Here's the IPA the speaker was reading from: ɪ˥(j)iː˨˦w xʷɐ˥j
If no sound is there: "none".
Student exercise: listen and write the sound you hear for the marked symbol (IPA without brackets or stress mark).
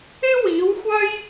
w